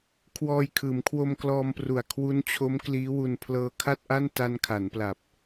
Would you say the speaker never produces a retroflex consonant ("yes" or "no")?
yes